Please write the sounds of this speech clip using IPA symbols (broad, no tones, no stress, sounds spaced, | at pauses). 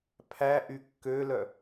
pʰ æ ʔ y kː ø l œ